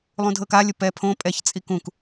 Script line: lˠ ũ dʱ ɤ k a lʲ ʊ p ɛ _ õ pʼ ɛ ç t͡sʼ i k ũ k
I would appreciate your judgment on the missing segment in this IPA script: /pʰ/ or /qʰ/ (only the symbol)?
pʰ